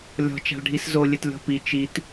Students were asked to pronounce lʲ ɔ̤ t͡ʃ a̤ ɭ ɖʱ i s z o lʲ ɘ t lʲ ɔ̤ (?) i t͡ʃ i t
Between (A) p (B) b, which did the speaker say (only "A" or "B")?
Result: A